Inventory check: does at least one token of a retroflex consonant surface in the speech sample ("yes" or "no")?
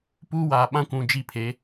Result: no